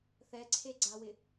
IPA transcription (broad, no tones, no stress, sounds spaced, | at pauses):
θ ɛ ǀʰ e ɡ͡ǀ a w ɪ